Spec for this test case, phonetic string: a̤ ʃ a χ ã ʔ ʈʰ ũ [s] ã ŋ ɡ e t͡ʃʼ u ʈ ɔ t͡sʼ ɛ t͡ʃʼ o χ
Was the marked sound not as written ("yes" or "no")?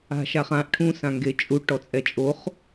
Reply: no